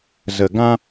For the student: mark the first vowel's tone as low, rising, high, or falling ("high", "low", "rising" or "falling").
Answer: low